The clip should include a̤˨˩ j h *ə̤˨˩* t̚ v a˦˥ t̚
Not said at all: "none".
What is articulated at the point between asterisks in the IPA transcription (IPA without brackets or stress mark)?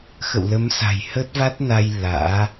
ə˦˥